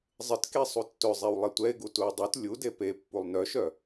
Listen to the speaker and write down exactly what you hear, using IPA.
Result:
zˤ ɪ t k e sˤ u tː ɵ zˤ e w lˠ e tʷ ɛ ɪ̯ ɡ u t u ə̯ dˤ u t lʲ u d e p e pː u lˠ n œ ʃ œ

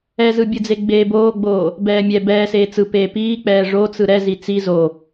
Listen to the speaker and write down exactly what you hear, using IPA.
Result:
ɛ z ɯ bʲ ɯ d͡z e ɡ͡b eː b oː ɡ͡b oː | b ɛː mʲ ɛ b ɛː s eː t͡s ɯ p eː p iː k͡p ɛː ʐ o t͡s ɯ ɾ ɛ z i t͡s i z o

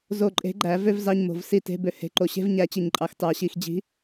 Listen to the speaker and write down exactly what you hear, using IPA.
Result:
z o˦˨ ǃʼ e̤˨˥ ɡ͡ǃ æ˨˩˦ v ø˥ v z ɑ˧˥˧ ɲ m o̤˨ v s i˦˨ t e̤˧˥˧ b ø˦˨ h e̤˨ ǃ o˨ ɕ e̤˥ v ɲ æ˨˥ t͡ɕ i˨ ɲ ǃʼ ɑ˨ x t ɑ˨˩˦ ɕ i˨ x d͡ʑ i̤˨˥

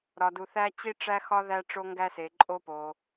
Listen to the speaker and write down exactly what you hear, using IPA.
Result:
ɾ ɒ˧ d u˧ θ æ˦ t͡ɕ i˦ ʈ͡ʂ æ˦ x ɒ˦ ð æ˦ ʈ͡ʂ o˦ ŋ ɡ æ˦ s e˧ ǃʼ o˦ p o˧

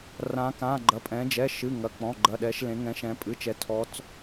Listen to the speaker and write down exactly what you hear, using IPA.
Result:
r ã˩˧ k ã˩˧˩ ɡ͡ǃ ɐ˩˧˩ pʼ ɛ̃˩˧ d͡ʒ ɛ˩˧˩ ʃ ɨ˩˧˩ ŋ ɐ˩˧˩ k͡p ɔ̃˩˧˩ ɡ͡ǃ ɐ˩˧˩ ɗ ɛ˩˧ ʃ l ẽ˩˧ ŋ ɛ̃˩˧ ʃ ɛ̃˩˧ pʼ ɨ˩˧˩ t͡ʃ ɛ˩˧ tʰ ɔ˩˧ t͡s

